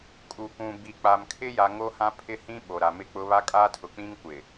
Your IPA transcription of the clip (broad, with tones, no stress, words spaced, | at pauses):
kʼu˨kʷũ˨ bi˨ k͡pa˨mkʰɪ˦ja˨ ŋo˦hã˦ pʰɪ˦hĩ˦ ɓo˨ɾa˨mɪ˦k͡pʊ˦ βa˦kʼaː˦tʰʊ˨k͡pĩ˦ŋ kʷɪ˨